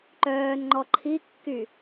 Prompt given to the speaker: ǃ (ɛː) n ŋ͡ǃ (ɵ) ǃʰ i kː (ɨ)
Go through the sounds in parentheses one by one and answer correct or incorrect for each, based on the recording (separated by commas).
incorrect, incorrect, incorrect